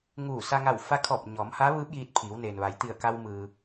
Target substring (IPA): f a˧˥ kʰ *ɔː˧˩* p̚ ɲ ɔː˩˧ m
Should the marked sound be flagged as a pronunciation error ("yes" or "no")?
no